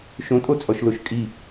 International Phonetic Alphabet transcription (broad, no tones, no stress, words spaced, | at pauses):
ʃõtʼot͡sʼɔʃloʃ kʼi